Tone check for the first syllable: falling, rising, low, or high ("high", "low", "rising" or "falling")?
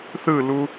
falling